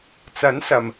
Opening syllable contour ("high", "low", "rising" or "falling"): rising